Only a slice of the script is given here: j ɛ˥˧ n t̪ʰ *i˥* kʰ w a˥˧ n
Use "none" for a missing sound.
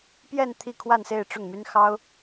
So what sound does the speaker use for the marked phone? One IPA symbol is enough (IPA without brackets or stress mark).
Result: i˥˧